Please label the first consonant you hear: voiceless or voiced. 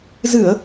voiced